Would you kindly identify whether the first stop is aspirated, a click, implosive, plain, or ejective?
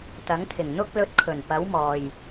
plain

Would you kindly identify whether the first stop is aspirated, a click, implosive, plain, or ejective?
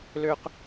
plain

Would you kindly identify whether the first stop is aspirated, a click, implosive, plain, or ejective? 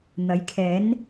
aspirated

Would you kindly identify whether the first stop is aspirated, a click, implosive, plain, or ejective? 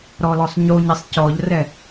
plain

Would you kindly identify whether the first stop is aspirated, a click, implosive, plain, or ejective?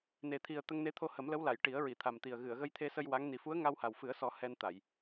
aspirated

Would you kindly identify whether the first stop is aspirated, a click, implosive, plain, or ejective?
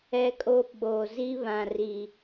ejective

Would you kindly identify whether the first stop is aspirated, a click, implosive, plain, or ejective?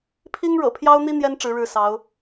aspirated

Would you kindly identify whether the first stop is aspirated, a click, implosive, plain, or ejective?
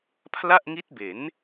aspirated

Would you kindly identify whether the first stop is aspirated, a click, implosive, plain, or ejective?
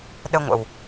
implosive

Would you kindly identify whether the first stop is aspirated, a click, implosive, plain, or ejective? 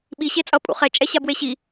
implosive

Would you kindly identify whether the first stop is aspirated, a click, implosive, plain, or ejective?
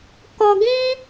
plain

